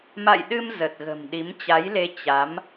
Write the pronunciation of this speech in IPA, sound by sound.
m a̰˧˨ j ɗ ɨ˧ m z ə˨˩ t̚ ɣ ə̤˨˩ m ɗ i˨˦ m t͡ɕ a˨˦ j l e˧ t͡ɕ a˨˦ m

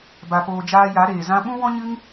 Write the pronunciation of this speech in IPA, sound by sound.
b a˧ p oː˧ d͡ʒ aː˧ j a˨˦ ɾ eː˨ z ã˦ ɓ ũ˦ w ɔ̃˦ ɲ ɨ˦ ŋ

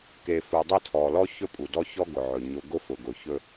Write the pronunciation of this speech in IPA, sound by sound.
k e˨ f u˨ dˤ e˦˨ tʰ ɔ˨ l ɔ˦ ç ɵ˦ pʼ u˨ d ɔ˦ ç ɔ˦ ɡ ʊ˨ ʕ ɵ˨ ɲ ʊ˨ ɡ ʊ˦ f ʊ˨ ɡ ʊ˨ ç ɵ˦

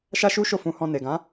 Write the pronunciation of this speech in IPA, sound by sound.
ʃ a˦ ʃ u˦ ʃ o˦˨ f ũ˧ h ɔ̃˧ n e˨ ɡ ã˨˦

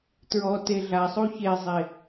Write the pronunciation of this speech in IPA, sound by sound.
t ɹ ɔ t e ɮ a sˤ u ç e zˤ e

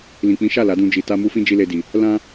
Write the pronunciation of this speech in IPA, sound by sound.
l ĩ˨ k͡p ĩ˨˦ ʃ a˦˨ l a˨˦ d ũ˧ d͡ʒ i˨ t a˧ m u˧ f ĩ˦ d͡ʒ i˦ l e˧ d i˨ | l ã˦

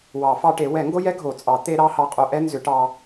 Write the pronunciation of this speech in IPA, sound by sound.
w ɑ˨˩˦ f ɑ˧ ʈ e˨˩˦ w ɛ˨˩˦ ŋ ɡ o˥ j ɛ˥ ɡʱ o˨˩˦ t͡sʼ ɑ˨˩˦ t̪ e˥ ɾ ɑ˥ h ɑ˧ qʼ o˧ ʔ ɛ˥ n z ʏ˨˩˦ ʈ ɑ˧

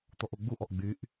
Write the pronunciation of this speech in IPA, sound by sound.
t̪ ɔ ʔ o ɡ͡b u ʔ ɔ ʔ ɡ͡b y ʔ

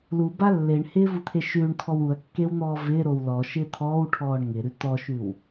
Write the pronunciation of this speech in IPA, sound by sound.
l u b a lː e ɳ h ɪː v u t̪ʰ e ʃ ʉː ɳ t̪ʰ ɔ w u ɐ̯ kː e w n̪ ɔː v ɪː ɾ o w l ɔ ʃ ɪː t̪ʰ ɔː w ʈʰ ɔː ɳ ŋ ɪ ɾ ʉ t̪ ɔ ʃ ʉ w

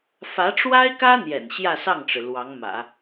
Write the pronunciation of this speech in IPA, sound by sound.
f ä˧˥ ʈ͡ʂ w a˥ ɪ̯ k ä˥ n̪ j ɛ̰˨˩ n ɕ j ä˥˧ s ɑ˥˩ ŋ ʈ͡ʂ ɻ̩˩ l w ɑ˧˥ ŋ m ä̰˨˩˦

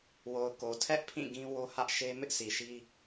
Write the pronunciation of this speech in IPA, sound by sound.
w o˨ ʊ̯ k o˨ tʰ ɛ˦ ʔ pʰ ĩ˦˨ ɡ ĩ˦ w o˦ h ä˦ ʔ ʃ e˦ m ɪ˦ ʔ s i˨ ʃ i˦

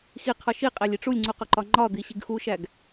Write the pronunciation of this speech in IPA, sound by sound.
x i qʰ ɒ ʃ i qʼ æ lʲ i ʈ͡ʂ u lʲ ŋ͡ǀ u q ɒ ǃ ɒ ŋ͡ǃ ɒ d̪ i ɕ i ɡ x u ʃ æ ɡ

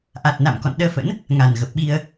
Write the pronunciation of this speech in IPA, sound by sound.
ʔ a˨˩ t̚ n a̰˧˨ m k ɔ̰˧˨ n ɗ əː˧ f ə̰˧˥ n | ŋ a˨˩ n ɣ ə˨˩ p̚ ɓ i˧ ə̯

